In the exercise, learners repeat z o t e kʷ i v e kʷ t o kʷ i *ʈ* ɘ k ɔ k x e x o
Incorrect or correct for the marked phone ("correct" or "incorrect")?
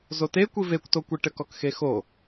correct